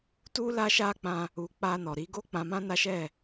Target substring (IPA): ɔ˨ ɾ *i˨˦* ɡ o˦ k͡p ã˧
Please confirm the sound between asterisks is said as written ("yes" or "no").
yes